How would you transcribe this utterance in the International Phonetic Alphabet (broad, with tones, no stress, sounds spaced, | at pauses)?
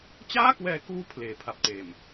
t͡ɕ aː˥˩ k w ɛː˧ k uː˧ pʰ l eː˩˦ pʰ a˨˩ p̚ t eː˨˩ m